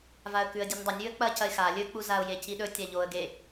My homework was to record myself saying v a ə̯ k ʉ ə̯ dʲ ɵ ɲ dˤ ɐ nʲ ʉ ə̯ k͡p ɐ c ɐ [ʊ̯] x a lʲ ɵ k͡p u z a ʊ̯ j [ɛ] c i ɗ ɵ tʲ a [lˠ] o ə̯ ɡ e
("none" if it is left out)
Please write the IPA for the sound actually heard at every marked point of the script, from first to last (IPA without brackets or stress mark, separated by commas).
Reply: ɪ̯, e, ʎ